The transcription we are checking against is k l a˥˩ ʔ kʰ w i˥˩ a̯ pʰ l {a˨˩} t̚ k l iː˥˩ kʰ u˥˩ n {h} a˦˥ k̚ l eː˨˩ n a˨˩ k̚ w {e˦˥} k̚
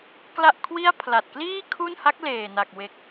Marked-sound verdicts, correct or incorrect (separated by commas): correct, correct, incorrect